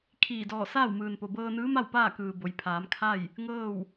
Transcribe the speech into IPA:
kʰiː˧˩dɔː˧˩ saː˥˨wmɯː˩npo˩ bɤː˧nɯː˧˥ma˥˨w paː˥˨kɯː˩ bo˩˧jpʰaː˩˧m kʰa˥˨j | ŋɤː˥˨w

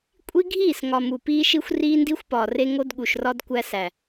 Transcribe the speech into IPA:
kʷʼi˦ ɡʱiː˦˨sŋɒ˨ mu˨piː˦ʃi˦xʷ riː˦ndi˦xʷpɒː˨re˦ ŋo˦dɠu˨ʃrɒ˦d kʷæ˦sæ˨

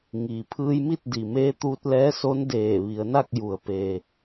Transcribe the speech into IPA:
ŋiː˩pʰɯː˧jmi˥˨t̚ di˩meː˧˥ t̪uː˧t̚lɛː˧˥so˧˥n deː˧˩ ʋi˩˧ə̯na˥˨k̚ju˩ə̯ peː˩

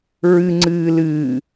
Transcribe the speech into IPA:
ɹɨŋ͡ǀɨː lɨː

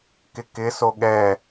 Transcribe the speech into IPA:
kɪkɪ soɠɛ

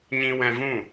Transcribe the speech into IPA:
ɲĩ˧wɛ̃˧vũ˦˨

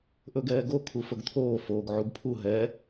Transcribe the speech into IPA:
ʔɵɡɛːɡo kʰufɵɡt̪ʰoː foːɡʕuɡpʰu ɦɛ

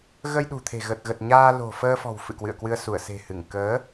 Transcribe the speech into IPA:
ɣə˧j ɗṳ˨˩t̪ʰe̤˨˩ ɣə˨˩t̚ɣə˨˩t̚ ɲaː˧lo̤˨˩fəː˧fɔ̤˨˩w fɨ̰˧˨kwɨ̰˧˨ə̯kwɨ˧ə̯ su˧˩ə̯ se̤˨˩hɨ˧˩ŋ kəː˨˦

